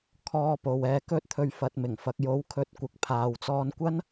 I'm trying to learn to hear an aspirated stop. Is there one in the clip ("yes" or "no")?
yes